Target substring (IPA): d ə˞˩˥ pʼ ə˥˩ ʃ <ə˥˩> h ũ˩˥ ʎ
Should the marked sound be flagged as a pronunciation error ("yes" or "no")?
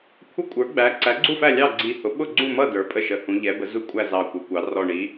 yes